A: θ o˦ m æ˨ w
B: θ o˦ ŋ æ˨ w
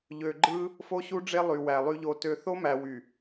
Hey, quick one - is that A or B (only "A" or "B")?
A